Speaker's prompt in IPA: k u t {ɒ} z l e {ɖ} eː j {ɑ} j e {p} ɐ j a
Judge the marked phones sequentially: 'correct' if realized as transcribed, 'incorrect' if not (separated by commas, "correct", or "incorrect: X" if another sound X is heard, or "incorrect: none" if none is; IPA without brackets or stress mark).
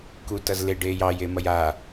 incorrect: ʌ, correct, correct, incorrect: m